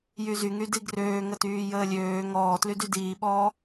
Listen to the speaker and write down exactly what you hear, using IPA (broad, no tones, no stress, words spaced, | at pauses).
jyzyŋy diɡrøːŋətyː jəːlʲøː ŋɔːtlydy diːɓɔː